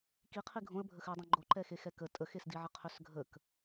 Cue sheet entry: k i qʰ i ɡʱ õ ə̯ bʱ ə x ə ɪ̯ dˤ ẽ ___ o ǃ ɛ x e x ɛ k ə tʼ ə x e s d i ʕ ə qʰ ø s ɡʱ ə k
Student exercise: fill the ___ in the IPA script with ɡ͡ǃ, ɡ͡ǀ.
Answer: ɡ͡ǃ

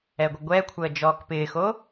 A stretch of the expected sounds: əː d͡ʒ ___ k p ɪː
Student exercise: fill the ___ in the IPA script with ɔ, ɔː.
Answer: ɔː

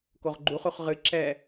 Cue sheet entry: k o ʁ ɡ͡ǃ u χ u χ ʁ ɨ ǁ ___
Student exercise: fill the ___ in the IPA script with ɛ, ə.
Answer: ɛ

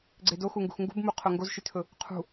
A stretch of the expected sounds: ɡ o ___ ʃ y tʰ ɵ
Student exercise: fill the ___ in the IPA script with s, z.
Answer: z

